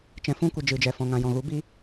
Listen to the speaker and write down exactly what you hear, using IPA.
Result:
t͡ʃ ɛ̃˧ f ũ˦ kʷ ə˧ d͡ʒ ɨ˨ d͡ʒ ɛ˨ f ɔ̃˨ ŋ ã˨ j ɔ̃˨ ɣ u˨˦ b i˦

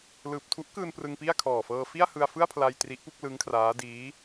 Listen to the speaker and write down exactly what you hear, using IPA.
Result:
l ɯː˨˩ p̚ tʰ u˦˥ ʔ k ɯː˧ n p r ɯ˧ ŋ p i˥˩ a̯ kʰ ɔː˨˩ f ɤː˧ f i˥˩ a̯ h ɯ˧ a̯ f ɯ˥˩ a̯ pʰ l a˧ j t r i˦˥ ʔ p u˥˩ k̚ l ɯ˦˥ ŋ kʰ r aː˦˥ d iː˦˥

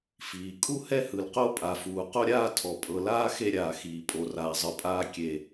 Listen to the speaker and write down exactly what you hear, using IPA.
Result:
f iː˨ kʼ u˦ h ɛ˦ h ɯ˨ l q o˦ pʼ a˨ f uː˨ q o˦ ɾʲ aː˦ tʰ ɔ˨ pʼ ɤ˨ l aː˦ x e˦ ɾʲ aː˨ x iː˨ pʼ o˨ r aː˨ zˤ ɯ˨ pʼ aː˦ kʲ e˦

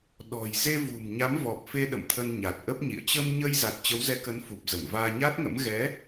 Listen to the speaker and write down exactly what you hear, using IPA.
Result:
ɗ ɔ̤˨˩ j z e˧ v ṳ˨˩ m ɲ a˨˦ m v ɔ˨˩ p̚ f e˧ ɗ ə̰˧˨ m t̪ʰ ə˧ n ɲ a˨˩ t̚ ʔ ə˦˥ p̚ ɲ ḭ˧˨ ə̯ t͡ɕ ə˧ m ɲ ə˧ j z a˨˩ t̚ t͡ɕ ə˨˦ w z ɛ˨˦ k ə˨˦ n f u˨˩ p̚ z ə˧˩ m v aː˧ ɲ a˦˥ t̚ ŋ ə̰˧˥ m ɣ ɛ˨˦

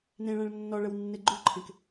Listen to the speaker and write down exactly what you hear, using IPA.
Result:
n ẽ ɭ æ̃ ɭ nː ɔ ɭ ə w nː e ɡ͡ǃ ʉ ǃʰ ẽ k

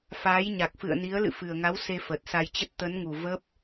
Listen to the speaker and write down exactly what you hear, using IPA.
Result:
f aː˨˦ j ɲ a˨˩ k̚ f ɨ̰˧˨ ə̯ n i˨˦ ə̯ l ɨ̰˧˨ f ɨ˨˩ ə̯ ŋ a˨˦ w s e˧ f ə˨˩ t̚ s a˧ j t͡ɕ ə˦˥ t̚ t̪ ə˨˦ n ŋ u˨˩ v ə˦˥ p̚

